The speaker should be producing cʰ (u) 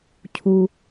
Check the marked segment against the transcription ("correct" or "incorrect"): correct